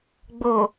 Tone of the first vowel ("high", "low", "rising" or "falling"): low